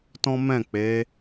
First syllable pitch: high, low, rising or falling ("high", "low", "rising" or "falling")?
high